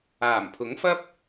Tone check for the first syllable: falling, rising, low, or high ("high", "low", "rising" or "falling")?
low